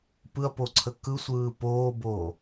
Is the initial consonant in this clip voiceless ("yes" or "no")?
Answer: yes